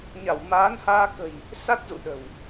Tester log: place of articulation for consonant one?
palatal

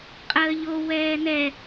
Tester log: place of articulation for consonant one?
uvular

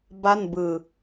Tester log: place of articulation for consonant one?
labial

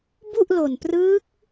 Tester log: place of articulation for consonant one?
labial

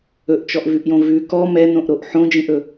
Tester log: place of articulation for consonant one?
glottal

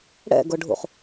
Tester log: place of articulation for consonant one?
retroflex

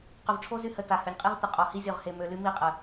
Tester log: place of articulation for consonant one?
uvular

